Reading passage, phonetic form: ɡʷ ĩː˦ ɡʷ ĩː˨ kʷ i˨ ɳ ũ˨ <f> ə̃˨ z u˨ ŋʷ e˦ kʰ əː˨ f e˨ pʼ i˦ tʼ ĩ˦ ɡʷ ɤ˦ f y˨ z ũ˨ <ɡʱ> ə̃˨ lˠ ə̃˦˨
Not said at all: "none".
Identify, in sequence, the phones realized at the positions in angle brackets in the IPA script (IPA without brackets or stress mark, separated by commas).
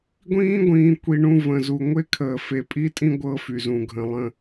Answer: v, ɡʱ